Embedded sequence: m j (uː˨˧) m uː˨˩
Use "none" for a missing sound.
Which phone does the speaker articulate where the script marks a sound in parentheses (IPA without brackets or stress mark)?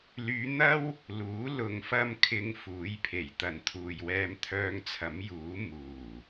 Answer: uː˨˥